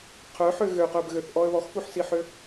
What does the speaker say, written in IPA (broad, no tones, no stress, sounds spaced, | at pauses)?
qʰ œ ħ ø ɣ ø q œ b ɣ ø θ ʔ ɔ ə̯ β ɔ x f u ħ s i ħ ø